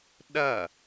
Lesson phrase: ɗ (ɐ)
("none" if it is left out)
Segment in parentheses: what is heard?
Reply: ɐ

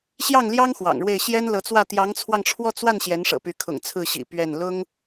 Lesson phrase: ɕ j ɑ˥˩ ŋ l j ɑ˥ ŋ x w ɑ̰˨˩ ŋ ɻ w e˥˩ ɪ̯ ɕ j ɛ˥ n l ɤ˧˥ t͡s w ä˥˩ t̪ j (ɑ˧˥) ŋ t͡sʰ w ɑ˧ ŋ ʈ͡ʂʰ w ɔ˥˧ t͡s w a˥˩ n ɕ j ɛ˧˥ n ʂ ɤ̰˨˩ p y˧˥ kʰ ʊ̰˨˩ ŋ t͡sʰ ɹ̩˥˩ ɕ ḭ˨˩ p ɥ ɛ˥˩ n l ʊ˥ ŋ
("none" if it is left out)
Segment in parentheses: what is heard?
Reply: ɑ˧˥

